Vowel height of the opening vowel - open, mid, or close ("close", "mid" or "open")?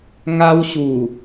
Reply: open